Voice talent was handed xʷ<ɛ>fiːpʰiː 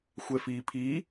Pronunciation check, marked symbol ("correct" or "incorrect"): correct